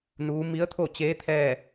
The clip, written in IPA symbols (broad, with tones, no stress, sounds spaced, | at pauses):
n uː˧˥ m i˧˥ ə̯ t̪ʰ o˥˨ t͡ɕ eː˧˥ t̪ʰ ɛː˥˨